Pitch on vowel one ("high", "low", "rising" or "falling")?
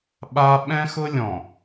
high